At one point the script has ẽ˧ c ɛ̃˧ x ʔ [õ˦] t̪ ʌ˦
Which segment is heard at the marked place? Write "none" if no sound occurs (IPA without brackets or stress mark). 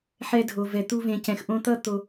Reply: õ˦